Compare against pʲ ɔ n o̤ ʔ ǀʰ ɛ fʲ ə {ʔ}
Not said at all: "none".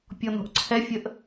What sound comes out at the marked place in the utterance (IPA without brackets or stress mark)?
ʔ